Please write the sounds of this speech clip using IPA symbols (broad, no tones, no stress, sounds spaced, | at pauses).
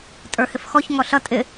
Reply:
tʼ ə˞ h ɪ f x ɔ ç ŋ ɔ ɬ ʌ tʼ ɪ